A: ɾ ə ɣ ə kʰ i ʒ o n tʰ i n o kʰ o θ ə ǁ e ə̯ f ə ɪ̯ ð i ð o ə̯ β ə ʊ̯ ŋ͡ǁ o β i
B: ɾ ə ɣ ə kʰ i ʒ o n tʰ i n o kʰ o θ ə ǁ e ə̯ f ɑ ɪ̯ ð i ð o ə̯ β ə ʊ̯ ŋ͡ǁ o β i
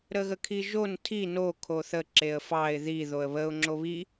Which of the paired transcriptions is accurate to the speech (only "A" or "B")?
B